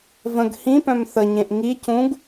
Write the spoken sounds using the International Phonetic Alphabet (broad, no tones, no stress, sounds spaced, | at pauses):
v ə̃ ɡ h ĩ p œ̃ m θ ə ɲ ẽ ʔ ŋ i c ũ ɡ